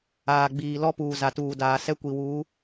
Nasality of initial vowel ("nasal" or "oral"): oral